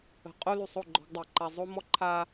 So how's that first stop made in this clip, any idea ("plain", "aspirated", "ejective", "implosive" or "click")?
ejective